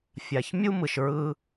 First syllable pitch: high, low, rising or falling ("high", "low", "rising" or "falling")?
low